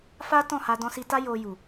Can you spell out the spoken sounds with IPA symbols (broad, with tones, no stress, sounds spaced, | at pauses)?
f a˦ t ɔ̃˦˨ h a˧ d ɔ̃˧ s i˧ t a˦ j o˧ j u˨